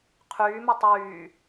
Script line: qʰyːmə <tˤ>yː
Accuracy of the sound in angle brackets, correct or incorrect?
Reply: correct